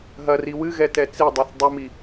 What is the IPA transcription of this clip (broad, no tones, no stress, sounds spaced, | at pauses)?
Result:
ɦ ɐ r i w ɨ ɣ ɛ t ɛ t͡s i dˤ ɛ θ dˤ u m i